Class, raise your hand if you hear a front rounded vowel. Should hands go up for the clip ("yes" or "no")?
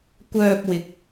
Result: yes